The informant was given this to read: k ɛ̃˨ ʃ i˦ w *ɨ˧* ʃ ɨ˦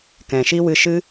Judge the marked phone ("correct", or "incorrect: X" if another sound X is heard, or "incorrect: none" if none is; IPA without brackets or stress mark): correct